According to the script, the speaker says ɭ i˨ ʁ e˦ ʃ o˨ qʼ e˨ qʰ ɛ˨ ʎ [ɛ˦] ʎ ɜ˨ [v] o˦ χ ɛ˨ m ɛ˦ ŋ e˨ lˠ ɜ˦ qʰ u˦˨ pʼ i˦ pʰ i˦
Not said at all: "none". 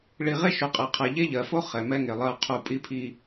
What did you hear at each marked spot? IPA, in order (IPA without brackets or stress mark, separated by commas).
e˦, f